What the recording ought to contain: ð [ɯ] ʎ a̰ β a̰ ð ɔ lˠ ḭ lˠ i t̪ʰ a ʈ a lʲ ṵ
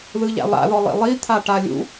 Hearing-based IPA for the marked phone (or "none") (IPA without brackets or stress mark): ɯ